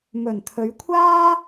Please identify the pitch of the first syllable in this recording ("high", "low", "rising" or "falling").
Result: low